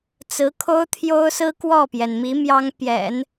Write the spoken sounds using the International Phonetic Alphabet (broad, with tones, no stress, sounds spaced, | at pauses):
t͡s ɹ̩˧˥ kʰ o˥ ʊ̯ t̪ʰ j o˥ ʊ̯ s ɹ̩˥ k w ɔ˥˩ p j ɛ˩ n m i˧˥ m j ɑ˥ ŋ p j ɛ̰˨˩˦ n